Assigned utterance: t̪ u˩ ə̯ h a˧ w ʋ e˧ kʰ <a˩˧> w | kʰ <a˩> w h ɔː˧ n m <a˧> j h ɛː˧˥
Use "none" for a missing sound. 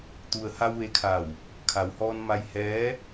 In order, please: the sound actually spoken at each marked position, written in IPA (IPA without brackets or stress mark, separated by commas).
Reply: a˧˩, a˩, a˧